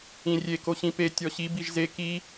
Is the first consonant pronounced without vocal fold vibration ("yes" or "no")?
no